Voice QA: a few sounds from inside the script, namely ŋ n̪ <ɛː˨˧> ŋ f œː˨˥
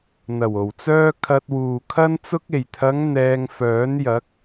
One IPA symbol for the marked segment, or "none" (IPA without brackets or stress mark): ɛː˧